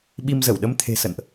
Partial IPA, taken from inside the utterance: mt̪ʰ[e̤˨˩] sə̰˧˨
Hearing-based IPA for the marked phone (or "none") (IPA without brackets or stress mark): e̤˨˩